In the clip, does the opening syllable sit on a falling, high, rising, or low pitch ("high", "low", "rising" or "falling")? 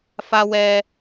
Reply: high